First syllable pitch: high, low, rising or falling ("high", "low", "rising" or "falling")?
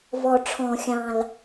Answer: low